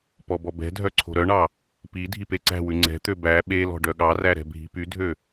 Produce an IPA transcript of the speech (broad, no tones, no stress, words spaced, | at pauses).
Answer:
pɔbɔbɛ̤dʱœ ǀʰo̤ɾœɳɑ | pi dʱipeǀæ̤wʉ ŋ͡ǀɛ̤t̪ø bæ ɓelɔ̤ ɖœɠɑræ ɾɛ̤bʱi̤pydʱø